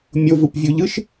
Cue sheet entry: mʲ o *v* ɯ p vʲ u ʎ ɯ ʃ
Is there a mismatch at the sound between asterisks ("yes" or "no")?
no